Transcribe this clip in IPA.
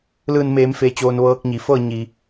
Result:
lɯː˧˩nmeː˩˧m feː˩t͡ɕoː˩n ʋɤː˧k̚ɲi˩˧fɤː˥˨ ɲi˩

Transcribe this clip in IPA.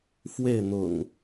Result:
fwe˥˨ɪ̯n̪ʊ̰˨˩ŋ

